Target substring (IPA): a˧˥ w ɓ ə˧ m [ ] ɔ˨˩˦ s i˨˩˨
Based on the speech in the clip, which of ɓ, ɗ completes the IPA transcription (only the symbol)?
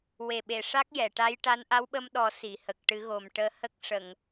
ɗ